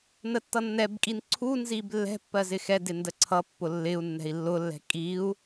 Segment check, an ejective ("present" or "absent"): present